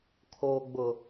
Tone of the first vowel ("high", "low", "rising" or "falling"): low